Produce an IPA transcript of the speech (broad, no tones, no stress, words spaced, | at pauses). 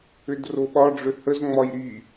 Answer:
ʏdroɓɒɖ͡ʐʏ həzŋ͡mɒj ɾi